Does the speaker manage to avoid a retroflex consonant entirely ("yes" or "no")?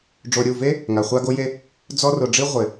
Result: no